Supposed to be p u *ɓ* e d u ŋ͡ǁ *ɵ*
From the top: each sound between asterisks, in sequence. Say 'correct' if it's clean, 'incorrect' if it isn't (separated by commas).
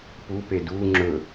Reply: incorrect, correct